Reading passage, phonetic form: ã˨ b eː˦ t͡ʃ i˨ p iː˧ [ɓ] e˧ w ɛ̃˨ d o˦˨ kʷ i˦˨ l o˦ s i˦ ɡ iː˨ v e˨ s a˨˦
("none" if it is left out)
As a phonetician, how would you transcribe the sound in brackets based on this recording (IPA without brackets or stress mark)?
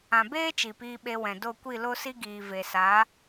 ɓ